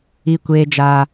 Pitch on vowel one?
high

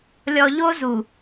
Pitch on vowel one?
low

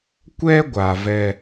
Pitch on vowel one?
high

